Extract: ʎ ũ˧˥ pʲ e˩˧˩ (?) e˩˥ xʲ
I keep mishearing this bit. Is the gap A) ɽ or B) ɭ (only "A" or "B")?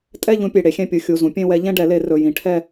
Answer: A